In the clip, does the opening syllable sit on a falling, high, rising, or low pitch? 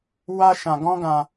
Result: high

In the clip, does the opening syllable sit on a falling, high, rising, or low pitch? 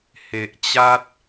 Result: low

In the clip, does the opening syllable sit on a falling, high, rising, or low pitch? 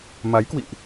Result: rising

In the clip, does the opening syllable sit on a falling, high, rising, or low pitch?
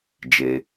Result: low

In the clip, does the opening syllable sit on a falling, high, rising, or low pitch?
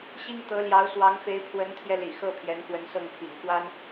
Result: high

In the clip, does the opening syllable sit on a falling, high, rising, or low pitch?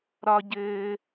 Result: high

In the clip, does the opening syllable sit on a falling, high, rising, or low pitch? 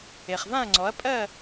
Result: low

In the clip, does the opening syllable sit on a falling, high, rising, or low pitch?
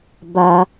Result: high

